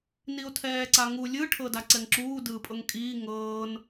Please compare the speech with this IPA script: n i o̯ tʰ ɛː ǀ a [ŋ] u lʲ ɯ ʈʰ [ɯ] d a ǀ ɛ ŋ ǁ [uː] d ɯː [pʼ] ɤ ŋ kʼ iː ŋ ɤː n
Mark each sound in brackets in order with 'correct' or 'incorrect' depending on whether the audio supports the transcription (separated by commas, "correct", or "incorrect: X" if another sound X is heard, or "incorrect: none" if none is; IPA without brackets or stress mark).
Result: correct, incorrect: ɤ, correct, correct